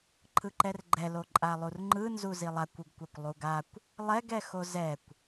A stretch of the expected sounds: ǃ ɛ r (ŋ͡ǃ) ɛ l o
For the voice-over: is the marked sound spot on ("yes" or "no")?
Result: no